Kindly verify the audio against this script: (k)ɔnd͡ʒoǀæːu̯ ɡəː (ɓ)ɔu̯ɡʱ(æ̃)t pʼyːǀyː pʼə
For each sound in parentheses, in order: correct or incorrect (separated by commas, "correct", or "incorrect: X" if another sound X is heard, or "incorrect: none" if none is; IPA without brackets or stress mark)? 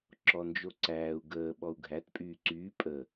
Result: incorrect: ǁ, correct, incorrect: æ